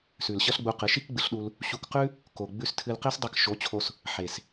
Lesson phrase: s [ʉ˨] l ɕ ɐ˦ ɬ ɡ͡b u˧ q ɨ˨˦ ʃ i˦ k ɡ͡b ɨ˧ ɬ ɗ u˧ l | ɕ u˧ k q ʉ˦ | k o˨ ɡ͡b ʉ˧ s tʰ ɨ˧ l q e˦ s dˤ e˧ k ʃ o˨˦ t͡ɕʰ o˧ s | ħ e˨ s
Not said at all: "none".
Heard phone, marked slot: ʉ˨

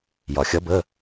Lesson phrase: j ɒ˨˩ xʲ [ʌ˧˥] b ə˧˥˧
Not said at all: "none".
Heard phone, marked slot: ʌ˧˥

